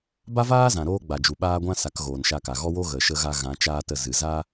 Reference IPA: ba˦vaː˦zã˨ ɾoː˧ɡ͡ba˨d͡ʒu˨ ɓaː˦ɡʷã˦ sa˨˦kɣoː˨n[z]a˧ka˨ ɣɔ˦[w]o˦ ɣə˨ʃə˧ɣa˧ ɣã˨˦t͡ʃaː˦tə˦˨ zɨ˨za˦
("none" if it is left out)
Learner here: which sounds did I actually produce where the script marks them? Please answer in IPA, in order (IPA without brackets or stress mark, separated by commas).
ʃ, w